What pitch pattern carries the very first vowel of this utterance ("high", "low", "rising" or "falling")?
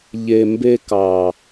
low